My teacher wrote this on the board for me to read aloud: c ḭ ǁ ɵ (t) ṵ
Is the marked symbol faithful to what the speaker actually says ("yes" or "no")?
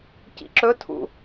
no